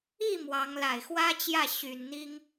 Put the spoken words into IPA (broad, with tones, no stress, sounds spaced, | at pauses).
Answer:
i˥˩ m w ɑ˧˥ ŋ l a˨˩ ɪ̯ x w ä˥ t͡ɕ j ä˥˩ ɕ y˨˩ n n̪ i˥ ŋ